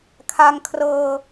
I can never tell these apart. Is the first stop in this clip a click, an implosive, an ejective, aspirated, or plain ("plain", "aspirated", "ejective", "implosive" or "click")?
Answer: aspirated